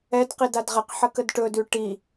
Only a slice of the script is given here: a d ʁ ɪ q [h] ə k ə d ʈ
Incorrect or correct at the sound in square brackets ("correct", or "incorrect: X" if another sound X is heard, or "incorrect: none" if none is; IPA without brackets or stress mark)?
incorrect: ħ